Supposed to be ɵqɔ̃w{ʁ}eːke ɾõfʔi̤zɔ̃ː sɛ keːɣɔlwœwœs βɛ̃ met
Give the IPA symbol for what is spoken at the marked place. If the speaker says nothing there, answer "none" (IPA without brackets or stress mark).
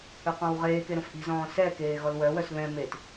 ʁ